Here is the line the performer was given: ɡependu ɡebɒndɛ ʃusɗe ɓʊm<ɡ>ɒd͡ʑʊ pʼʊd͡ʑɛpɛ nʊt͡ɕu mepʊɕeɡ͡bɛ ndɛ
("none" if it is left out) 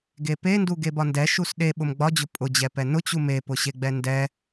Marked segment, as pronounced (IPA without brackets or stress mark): ɡ͡b